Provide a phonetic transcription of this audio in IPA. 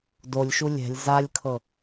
d o lʲ ʃ u lʲ ɛ̤ lʲ z a lʲ kʰ ɤ

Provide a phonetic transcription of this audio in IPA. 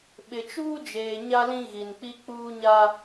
ɓ ɪ˨ t͡ʃ uː˦ d͡ʒ eː˨ ɲ a˦ l ĩ˦ ɣ i˨ n k͡p i˦ k͡p uː˦ ɲ a˦

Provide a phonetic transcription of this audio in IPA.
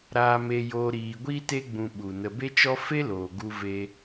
ɾ aː˧ m e˧ j oː˧ ɾ iː˧ ɡʷ iː˦ t e˦ ɡ͡b ũ˧ ɓ u˨ n ə˧ b e˦ t͡ʃ ɔ˦ f e˦ l oː˨ ɡ u˧ v e˧

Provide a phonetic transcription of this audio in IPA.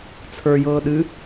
t͡sʰ ə˞ j ɤː ɗ ɨ

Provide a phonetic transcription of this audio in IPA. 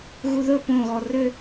ɣ u ð ɵ p õ ɣ ɔ r ʏ

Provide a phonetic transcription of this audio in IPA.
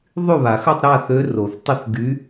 ðˤ y˥˨ β a˨˩˦ x ə˥˨ tˤ ɾ a˥˨ θ ø˧˥ r o˨˩˦ θ tˤ ə˥˨ θ ɡ y˧˥

